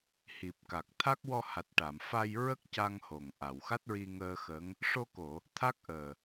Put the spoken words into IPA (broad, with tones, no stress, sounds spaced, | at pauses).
h i˨˩ p̚ k a˨˩ k̚ t̪ʰ a˦˥ k̚ w ɔ˧ h a˨˩ t̚ ʈ a˨˩˨ m f a˧ j ɹ ə˦˥ k̚ c a˧ ŋ h o˨˩ ŋ ʔ a˨˩˨ w x a˦˥ t̚ ɹ i˧ ŋ əː˧ x əː˧˥ ŋ | ʂ o˧ k o˨˩˨ | t̪ʰ a˦˥ k̚ ʔ əː˨˩